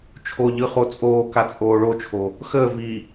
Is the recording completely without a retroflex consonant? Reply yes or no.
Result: no